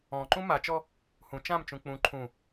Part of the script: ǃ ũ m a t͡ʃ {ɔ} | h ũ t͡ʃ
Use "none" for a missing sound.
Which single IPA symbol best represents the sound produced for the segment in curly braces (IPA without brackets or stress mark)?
ɔ